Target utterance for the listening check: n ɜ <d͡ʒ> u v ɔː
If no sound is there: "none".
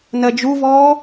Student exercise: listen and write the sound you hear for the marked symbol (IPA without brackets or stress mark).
d͡ʒ